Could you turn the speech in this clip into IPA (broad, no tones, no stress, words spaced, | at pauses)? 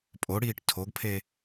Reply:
pʼoɽiːʈ tʰoɡpʰe